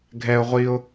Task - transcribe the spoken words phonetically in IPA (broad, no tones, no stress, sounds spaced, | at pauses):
ɡʱ ɛ ʊ̯ ʁʷ i ʊ̯